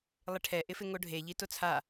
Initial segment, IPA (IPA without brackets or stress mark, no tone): lˠ